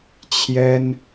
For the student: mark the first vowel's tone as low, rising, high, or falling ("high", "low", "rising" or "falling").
high